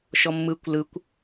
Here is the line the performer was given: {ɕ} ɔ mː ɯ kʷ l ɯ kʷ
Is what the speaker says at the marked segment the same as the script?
no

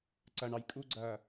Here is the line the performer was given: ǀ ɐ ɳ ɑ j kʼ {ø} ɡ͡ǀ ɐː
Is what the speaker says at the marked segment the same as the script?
no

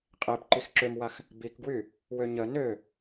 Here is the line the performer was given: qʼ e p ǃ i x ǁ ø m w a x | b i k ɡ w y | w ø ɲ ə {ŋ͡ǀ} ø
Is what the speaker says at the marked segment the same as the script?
no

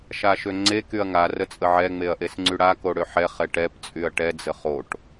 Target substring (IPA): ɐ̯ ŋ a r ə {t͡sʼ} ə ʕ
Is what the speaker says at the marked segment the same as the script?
yes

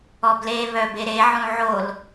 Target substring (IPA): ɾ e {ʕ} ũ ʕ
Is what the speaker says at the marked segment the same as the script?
yes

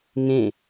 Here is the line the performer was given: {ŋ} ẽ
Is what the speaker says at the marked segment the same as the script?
yes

